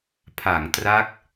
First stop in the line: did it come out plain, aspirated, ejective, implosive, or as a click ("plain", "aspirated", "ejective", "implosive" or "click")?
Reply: aspirated